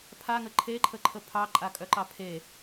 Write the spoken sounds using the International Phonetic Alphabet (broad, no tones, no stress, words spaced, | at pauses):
pʰaŋə ǃʰeǃʰəǃʰə pʰɑǃʼakʼœǃɑ pʰe